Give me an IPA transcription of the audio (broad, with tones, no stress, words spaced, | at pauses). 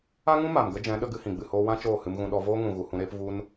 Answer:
a˦ŋũ˦ ma˨mɡə˦d͡ʒɛ̃˨˦ ɗə˦ɡɨ˦hĩ˨ ɡ͡bɨ˨hoː˧wã˦ t͡ʃoː˦˨hɨ˧mɣũ˧ ɗɔ˧voː˦ŋũ˨ ɣu˨hũ˧ɾeː˦p vu˧n